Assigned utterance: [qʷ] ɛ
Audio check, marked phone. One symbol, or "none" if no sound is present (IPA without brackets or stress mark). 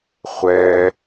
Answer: χʷ